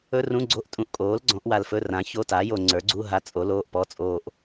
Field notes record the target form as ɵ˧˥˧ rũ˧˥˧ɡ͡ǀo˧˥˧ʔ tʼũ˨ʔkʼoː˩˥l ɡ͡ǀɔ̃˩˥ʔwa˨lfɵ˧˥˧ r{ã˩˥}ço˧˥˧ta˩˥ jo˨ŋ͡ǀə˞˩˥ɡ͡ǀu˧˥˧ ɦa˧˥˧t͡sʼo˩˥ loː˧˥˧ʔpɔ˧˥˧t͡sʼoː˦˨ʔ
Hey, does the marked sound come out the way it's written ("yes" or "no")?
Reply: yes